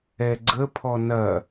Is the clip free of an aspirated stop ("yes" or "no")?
no